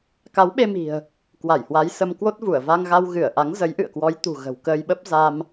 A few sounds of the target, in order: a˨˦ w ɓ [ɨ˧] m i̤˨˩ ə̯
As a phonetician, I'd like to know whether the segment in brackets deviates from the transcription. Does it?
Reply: yes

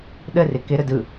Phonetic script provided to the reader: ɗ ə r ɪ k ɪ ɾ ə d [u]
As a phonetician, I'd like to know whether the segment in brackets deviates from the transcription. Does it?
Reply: yes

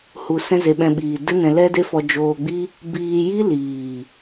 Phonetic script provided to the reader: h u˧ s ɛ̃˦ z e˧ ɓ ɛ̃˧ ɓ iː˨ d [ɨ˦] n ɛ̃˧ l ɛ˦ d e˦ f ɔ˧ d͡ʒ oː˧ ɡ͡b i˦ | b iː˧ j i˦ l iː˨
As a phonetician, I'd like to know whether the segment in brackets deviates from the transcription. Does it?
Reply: no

